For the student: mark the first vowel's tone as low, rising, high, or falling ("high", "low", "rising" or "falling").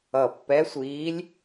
low